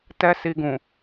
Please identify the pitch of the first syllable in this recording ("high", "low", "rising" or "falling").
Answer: high